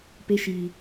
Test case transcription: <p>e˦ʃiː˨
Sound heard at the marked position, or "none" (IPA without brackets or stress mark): p